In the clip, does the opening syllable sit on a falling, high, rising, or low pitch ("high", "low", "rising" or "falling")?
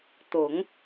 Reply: low